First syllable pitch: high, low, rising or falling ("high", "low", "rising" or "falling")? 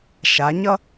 rising